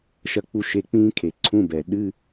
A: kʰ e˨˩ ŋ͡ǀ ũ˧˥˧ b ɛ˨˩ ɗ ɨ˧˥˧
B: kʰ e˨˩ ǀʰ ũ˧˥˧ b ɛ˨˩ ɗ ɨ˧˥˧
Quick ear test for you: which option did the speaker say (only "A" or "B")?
B